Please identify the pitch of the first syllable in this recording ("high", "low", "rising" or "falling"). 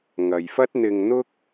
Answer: low